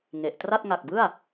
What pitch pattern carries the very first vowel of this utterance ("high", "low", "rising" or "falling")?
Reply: low